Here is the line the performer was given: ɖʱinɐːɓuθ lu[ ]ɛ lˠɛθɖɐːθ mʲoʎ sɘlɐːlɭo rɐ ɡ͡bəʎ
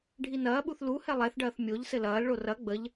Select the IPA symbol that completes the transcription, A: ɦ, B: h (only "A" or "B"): B